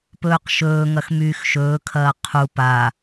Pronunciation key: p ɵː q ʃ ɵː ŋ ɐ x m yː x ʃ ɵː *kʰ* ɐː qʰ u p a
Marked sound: correct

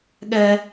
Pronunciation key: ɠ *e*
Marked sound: incorrect: ɛ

